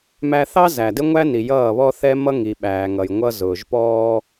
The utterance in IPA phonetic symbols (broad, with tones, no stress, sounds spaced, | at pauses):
m æ˦ θ ɑ˦ z æ˨ d ɪ˦ ŋʷ æ˦ n i˨ j ʌː˦˨ β ɔ˦ θ ɛ˦ m ʌ˦ ŋ i˨ ɓ æː˨ ŋ ʌ˨ j ŋʷ ʌ˦ z ʊː˨ ʒ p ɔː˦